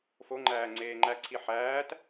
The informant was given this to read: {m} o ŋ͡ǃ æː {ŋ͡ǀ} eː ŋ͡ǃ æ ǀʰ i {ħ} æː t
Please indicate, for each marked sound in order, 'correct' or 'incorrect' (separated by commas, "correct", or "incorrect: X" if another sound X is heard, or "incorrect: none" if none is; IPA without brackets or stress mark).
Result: incorrect: f, correct, correct